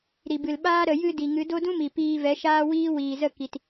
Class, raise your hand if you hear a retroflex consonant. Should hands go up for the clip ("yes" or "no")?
no